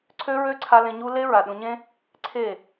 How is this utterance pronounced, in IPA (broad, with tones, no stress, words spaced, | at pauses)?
ǀʰø˧ ɹø˦ǀʰa˧ lẽ˧ɲu˦ le˦ ɹa˨ɗũ˧ ɲẽ˦ | ǀʰe˦˨